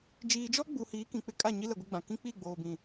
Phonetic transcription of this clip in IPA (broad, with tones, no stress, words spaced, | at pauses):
d͡ʒiː˨d͡ʒɔ˦ɡ͡bu˨ hiː˨˦kĩ˨k͡pɪ˦kʼa˦˨ ɲi˦lɛ˨ɡʷɪ˦ɡ͡bã˨ kĩ˦k͡pi˦˨ ɡ͡boː˨bĩ˨